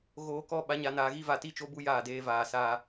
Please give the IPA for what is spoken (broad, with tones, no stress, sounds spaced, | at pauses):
ɣ oː˨ k ɔ˦ ɓ a˨˦ ɲ a˨ n aː˨ ɣ i˦ v a˨ t i˦ t͡ʃ o˦ b u˦ j aː˦˨ d eː˦ v aː˨ s aː˦